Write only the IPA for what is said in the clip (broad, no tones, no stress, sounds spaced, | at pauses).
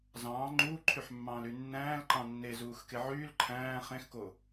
z ɑ̃ː ŋ͡ǃ uː ǃʰ y ħ mː ɑ̃ː l y nː æ̃ː l ǃ ɑ̃ nː e z uː x k e ʕ yː l ǃʰ æ̃ː χ ẽ x k o